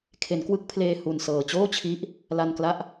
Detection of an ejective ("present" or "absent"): absent